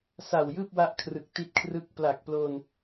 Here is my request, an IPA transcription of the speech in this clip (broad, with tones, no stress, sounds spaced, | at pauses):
s a˨˩ w j ɯː˥˩ p̚ w a˦˥ ʔ kʰ r ɯ˨˩ k̚ t i˦˥ t̚ kʰ r ɯ˦˥ k̚ p l a˨˩ k̚ p l oː˧ n